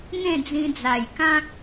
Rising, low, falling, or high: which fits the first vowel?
falling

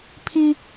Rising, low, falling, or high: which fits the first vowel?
high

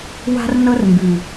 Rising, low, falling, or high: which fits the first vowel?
high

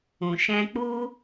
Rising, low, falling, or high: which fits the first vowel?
low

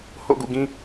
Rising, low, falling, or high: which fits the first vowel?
falling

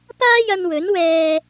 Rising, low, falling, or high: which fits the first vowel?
high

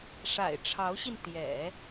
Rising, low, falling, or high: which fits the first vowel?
low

